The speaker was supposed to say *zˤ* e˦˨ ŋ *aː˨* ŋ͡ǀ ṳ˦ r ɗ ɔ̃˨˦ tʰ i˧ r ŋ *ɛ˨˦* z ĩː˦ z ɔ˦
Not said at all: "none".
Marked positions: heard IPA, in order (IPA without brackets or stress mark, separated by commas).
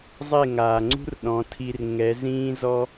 zˤ, aː˨, ɛ˨˦